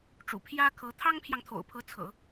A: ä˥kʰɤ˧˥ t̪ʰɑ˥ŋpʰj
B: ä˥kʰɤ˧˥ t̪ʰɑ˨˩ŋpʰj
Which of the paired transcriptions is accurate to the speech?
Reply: A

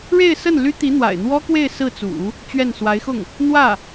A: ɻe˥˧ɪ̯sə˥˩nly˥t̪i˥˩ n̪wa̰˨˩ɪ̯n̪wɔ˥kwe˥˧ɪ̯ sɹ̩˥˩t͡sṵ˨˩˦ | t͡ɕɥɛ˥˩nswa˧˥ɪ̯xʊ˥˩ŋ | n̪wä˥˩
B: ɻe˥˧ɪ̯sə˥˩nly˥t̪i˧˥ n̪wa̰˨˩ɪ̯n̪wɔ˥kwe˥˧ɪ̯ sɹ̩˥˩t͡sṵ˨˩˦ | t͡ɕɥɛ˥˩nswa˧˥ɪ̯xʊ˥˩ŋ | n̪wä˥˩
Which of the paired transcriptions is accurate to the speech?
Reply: B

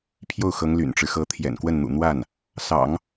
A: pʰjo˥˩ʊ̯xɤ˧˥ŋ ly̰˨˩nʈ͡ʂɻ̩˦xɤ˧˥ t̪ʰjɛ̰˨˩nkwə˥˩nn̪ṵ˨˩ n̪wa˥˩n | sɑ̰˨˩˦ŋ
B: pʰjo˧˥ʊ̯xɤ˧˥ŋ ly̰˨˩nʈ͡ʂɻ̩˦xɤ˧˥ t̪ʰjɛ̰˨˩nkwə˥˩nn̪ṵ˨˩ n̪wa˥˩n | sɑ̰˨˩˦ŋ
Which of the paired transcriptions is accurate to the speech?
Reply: A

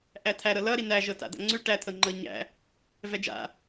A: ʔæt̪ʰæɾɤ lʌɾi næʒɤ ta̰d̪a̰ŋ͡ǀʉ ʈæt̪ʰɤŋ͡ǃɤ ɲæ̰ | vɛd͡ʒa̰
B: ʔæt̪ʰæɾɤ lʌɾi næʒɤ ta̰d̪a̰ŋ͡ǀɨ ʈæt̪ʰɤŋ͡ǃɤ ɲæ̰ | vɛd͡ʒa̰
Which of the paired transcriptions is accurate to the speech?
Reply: A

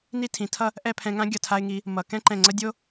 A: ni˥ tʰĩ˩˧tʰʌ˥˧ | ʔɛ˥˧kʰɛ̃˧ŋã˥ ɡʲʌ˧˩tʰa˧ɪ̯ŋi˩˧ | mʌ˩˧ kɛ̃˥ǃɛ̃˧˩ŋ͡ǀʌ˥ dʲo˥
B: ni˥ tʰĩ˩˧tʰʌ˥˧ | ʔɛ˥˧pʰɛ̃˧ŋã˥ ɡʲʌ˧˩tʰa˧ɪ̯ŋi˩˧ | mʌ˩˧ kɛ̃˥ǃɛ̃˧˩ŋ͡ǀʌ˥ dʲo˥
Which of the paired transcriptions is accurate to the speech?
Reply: B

